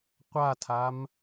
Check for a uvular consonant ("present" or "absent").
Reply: present